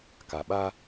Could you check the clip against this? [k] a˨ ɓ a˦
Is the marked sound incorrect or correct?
correct